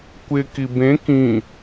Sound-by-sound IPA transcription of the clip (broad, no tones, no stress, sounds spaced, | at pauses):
kʷ ɪ k i b ẽ k ĩ